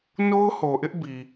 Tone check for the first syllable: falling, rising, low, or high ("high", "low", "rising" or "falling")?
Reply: high